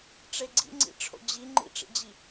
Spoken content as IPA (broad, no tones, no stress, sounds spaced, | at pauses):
ʈ͡ʂ e ɡ͡ǀ ḭ ŋ͡ǀ ḭ ʈ͡ʂʰ o̰ d͡ʑ i ŋ͡ǃ ḭ ʈ͡ʂ ḭ d͡ʑ i